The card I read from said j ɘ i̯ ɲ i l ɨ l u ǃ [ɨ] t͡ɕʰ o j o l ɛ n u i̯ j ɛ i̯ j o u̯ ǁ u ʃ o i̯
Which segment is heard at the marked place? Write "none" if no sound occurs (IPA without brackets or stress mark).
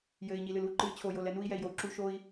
ɨ